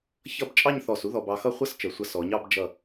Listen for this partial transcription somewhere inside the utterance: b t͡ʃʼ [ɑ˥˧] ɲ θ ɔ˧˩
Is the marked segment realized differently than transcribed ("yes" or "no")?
no